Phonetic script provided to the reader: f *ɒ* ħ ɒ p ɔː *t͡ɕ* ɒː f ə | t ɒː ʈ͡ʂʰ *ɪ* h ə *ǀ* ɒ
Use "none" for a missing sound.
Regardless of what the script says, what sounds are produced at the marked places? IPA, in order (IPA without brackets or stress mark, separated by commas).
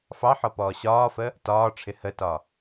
ɑ, ɕ, ɪ, t